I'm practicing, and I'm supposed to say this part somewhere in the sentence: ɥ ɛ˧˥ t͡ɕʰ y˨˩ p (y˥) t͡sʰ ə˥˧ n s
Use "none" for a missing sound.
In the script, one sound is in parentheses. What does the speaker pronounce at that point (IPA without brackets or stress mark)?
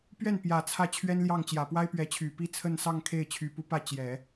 i˥